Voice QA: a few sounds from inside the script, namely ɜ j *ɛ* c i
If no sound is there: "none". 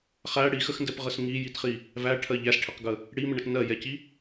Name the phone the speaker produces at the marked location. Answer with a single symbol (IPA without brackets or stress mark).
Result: ɛ